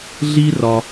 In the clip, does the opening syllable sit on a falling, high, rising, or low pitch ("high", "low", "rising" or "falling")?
high